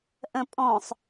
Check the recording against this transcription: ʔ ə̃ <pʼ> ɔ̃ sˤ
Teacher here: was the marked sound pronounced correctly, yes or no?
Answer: yes